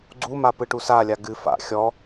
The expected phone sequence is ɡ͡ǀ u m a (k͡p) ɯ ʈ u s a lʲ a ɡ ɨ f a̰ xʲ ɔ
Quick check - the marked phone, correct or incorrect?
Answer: incorrect